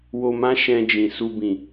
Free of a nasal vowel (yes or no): no